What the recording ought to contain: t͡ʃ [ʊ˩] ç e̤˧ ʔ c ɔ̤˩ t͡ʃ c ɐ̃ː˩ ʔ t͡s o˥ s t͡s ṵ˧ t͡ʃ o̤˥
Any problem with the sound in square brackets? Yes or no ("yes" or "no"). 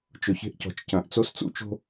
no